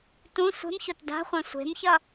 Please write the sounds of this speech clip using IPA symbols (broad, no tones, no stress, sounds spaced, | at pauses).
t ũ sʷ e̤ m ç o t d a̤ χʷ ɛ̃ sʷ e̤ m ç ʌ